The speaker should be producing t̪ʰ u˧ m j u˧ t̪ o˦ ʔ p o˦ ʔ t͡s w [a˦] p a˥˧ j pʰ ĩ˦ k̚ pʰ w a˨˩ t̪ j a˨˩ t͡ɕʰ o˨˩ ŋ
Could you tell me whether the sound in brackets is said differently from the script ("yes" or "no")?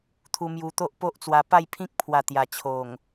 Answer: yes